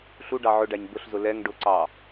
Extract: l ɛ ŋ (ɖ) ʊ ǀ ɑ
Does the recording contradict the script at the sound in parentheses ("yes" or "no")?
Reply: no